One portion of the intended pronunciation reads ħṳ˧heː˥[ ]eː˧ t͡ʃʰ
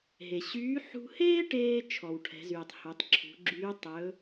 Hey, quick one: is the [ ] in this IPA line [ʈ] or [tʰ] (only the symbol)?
ʈ